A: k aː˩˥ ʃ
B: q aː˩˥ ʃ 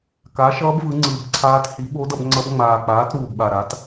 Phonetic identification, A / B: A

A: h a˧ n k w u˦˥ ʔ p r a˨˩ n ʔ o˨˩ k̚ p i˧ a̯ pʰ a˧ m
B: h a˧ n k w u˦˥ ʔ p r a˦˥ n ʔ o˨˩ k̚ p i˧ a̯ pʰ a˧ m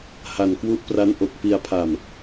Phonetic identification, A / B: B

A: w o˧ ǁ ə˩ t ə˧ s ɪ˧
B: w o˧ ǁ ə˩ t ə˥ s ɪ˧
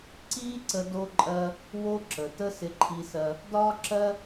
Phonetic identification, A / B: B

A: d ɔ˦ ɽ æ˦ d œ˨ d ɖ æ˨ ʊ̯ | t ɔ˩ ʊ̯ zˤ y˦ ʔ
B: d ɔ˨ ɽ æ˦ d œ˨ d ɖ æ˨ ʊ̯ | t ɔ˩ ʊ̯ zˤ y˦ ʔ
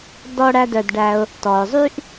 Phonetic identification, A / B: A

